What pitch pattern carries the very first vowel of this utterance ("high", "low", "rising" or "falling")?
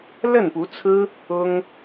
falling